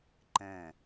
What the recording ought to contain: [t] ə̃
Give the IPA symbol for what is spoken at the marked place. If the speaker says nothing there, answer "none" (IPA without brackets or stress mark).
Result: ǃ